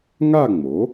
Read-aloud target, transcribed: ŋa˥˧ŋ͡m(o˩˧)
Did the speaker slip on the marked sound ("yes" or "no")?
yes